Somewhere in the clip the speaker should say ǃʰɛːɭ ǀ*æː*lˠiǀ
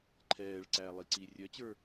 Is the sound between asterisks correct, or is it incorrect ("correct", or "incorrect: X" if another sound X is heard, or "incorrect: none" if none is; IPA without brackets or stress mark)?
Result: correct